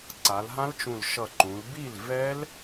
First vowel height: low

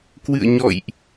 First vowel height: high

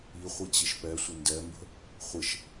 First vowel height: high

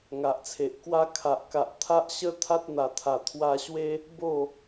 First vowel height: low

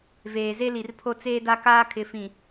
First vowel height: mid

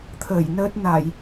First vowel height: mid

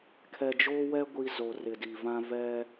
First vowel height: mid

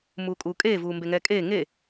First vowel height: high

